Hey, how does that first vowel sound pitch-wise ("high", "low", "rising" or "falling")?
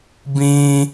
high